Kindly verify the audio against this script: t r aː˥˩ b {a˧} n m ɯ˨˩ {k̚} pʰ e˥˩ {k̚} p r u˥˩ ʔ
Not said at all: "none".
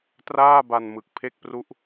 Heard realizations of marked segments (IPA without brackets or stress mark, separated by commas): a˧, k̚, k̚